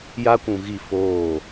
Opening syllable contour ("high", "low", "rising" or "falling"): high